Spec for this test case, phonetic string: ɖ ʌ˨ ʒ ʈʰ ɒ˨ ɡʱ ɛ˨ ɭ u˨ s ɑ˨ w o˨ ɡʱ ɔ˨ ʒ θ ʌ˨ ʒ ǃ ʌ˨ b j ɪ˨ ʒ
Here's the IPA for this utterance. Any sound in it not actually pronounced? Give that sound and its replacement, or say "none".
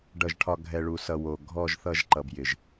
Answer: ɑ˨ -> ʌ˨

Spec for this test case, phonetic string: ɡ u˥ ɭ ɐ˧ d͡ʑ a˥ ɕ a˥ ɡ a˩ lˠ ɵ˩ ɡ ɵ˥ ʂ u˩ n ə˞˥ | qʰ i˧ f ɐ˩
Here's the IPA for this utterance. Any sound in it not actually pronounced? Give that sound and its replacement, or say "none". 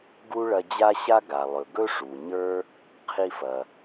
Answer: n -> ɲ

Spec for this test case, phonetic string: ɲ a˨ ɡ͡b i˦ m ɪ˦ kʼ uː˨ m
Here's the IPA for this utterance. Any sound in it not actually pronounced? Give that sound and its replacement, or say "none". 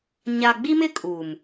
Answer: none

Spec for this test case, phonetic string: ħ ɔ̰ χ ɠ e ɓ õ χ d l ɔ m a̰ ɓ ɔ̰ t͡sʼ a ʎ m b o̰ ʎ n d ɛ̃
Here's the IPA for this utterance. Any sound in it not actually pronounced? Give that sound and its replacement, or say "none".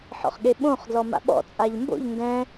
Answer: none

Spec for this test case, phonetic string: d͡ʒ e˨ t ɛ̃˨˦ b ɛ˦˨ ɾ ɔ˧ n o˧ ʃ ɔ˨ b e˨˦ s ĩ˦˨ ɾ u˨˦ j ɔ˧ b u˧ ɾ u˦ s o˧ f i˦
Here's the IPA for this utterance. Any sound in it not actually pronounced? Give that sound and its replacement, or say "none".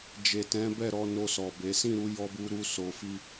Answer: ʃ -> s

